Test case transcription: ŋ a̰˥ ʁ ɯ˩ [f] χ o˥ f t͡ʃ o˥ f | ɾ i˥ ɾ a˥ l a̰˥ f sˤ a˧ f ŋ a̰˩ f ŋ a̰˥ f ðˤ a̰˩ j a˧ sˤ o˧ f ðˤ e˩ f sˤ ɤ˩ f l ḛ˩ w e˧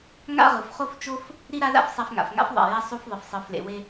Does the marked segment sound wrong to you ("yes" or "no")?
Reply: no